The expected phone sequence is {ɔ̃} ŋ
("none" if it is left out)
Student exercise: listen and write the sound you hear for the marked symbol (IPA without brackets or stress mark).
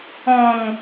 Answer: ɔ̃